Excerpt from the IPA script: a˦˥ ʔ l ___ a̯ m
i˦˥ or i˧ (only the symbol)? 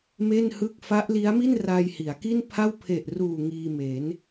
i˦˥